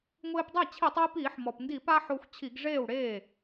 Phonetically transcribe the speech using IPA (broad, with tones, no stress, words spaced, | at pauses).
ŋʷɪː˧pdˤa˥˩ t͡ɕʰi˧˩˧tˤwi˧piː˧˩˧ħ mɔ˩pndi˧˩˧pa˧ ħo˧xʷt͡ɕʰi˧˩˧ɡʐeː˥˩wɽeː˥˩